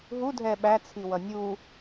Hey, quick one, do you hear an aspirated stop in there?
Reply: yes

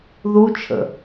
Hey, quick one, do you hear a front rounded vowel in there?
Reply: no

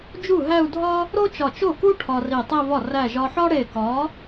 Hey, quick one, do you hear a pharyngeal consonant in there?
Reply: yes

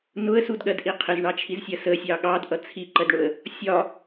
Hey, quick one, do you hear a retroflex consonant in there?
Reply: yes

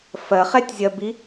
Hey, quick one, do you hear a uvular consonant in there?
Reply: yes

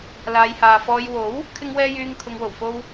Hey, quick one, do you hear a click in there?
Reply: no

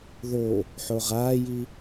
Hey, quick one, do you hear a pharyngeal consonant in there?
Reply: yes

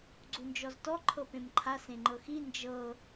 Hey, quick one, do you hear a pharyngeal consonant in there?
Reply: no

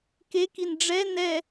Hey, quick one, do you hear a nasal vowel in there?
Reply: no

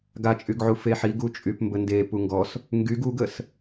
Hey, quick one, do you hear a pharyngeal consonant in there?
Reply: yes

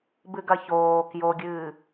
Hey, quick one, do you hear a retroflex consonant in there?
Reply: no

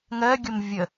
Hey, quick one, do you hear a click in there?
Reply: no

